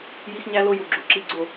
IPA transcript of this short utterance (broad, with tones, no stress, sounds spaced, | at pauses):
j i˦ x ɲ æ˦ l o˦ j u˨ ɡ͡ǁ ṳ˨ ǁ i˦ ɡ͡ǀ o˦˨